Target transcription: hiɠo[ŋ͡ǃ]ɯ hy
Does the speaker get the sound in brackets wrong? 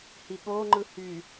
no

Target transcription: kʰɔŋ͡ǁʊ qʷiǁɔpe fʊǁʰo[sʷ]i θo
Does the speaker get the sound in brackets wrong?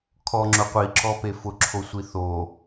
no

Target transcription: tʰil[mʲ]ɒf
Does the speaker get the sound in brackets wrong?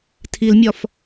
no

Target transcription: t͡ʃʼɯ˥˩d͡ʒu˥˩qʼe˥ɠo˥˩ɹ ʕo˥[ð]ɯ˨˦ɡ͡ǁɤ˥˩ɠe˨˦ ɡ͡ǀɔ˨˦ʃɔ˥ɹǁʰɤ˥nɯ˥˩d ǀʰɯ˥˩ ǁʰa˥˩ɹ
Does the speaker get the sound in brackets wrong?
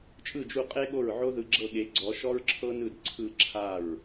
no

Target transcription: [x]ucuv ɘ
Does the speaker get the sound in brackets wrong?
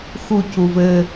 no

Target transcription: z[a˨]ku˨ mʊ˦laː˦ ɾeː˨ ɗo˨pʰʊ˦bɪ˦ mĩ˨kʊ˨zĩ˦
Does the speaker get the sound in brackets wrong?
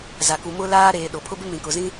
no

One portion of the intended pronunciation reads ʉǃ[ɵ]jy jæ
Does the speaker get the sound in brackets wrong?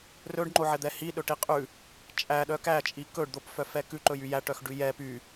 no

